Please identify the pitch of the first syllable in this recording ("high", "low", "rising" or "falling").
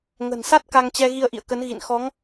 low